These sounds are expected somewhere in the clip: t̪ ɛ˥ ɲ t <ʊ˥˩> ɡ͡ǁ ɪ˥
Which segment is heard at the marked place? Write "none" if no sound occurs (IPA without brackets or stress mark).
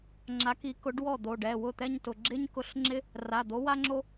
ʊ˩˧˩